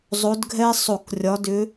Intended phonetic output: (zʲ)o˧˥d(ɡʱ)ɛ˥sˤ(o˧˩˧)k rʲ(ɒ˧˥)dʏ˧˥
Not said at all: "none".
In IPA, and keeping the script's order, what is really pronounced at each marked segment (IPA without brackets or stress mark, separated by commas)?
zˤ, ɡʱ, o˧˩˧, ɒ˧˥